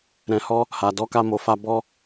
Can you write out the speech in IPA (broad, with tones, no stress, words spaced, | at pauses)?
ɾɛ̃˧hɔ˦ | ha˨dɔ˧ka˧ mo˨fa˧ bɔ˦